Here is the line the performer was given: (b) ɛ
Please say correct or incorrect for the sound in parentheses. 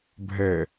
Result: incorrect: bʱ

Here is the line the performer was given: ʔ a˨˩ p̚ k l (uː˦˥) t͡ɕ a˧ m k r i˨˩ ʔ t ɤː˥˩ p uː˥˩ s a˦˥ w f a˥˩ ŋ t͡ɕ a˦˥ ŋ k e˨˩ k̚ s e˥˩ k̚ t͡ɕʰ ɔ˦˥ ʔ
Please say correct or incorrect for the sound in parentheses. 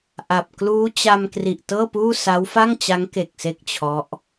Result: correct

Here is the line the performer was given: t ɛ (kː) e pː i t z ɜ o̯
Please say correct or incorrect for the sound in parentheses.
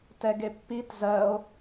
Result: incorrect: ɡ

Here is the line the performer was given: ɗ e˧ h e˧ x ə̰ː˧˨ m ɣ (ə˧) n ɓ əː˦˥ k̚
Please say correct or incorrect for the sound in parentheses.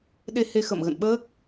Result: incorrect: ə̰˧˨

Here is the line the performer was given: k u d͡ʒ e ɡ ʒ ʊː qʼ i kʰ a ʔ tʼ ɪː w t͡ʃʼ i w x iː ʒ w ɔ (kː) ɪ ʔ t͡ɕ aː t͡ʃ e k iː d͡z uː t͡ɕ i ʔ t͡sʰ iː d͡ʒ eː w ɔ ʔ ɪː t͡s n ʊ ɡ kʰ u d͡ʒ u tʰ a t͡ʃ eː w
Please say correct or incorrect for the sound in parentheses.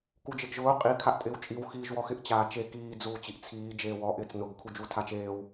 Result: incorrect: x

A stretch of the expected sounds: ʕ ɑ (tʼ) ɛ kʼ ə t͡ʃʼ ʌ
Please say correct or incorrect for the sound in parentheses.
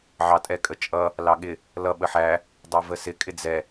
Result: correct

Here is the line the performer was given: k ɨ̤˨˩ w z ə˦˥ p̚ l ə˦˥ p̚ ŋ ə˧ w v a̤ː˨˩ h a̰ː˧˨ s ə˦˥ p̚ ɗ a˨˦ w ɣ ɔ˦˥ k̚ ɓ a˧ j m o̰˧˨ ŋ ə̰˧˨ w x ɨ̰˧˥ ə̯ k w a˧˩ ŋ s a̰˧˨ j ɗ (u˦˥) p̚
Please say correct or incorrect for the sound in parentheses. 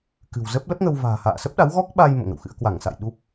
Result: correct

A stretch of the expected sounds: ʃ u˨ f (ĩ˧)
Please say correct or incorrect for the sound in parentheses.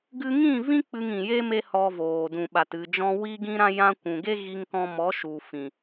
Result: incorrect: ĩ˨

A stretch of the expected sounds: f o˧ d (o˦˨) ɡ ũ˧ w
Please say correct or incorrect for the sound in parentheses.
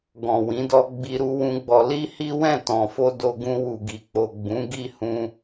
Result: incorrect: o˧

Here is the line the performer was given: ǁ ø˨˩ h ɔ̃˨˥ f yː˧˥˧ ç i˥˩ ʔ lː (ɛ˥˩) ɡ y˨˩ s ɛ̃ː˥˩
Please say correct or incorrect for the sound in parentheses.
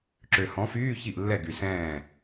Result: correct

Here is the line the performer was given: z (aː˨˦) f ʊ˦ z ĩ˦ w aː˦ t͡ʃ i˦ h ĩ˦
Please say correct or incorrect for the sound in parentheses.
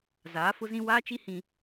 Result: correct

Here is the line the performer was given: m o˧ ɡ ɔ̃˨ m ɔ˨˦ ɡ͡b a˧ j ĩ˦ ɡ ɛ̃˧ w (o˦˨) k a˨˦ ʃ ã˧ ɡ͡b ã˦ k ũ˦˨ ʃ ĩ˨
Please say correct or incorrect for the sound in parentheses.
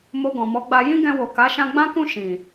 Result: incorrect: o˨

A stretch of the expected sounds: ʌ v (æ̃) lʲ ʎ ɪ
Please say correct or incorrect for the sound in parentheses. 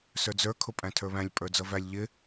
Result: incorrect: æ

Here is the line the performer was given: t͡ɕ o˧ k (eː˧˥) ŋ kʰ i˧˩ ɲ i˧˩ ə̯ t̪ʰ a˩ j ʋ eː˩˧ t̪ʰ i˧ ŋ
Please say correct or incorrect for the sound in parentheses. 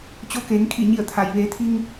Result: incorrect: eː˩˧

